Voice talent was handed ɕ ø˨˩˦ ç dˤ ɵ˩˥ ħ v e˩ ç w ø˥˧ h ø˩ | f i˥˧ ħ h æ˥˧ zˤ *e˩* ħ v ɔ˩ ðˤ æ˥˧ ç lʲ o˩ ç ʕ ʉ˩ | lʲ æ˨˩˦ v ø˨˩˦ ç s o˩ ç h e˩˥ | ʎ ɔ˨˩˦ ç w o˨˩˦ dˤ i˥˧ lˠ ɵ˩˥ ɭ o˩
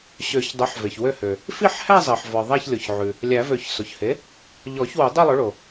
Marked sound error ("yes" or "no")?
no